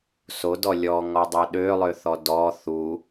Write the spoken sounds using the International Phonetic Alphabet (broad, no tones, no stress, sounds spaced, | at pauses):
s o d ɔ lʲ ɔ ŋ ɔ dˤ o ɗ ø lˠ ø θ ɔ d ɔ θ u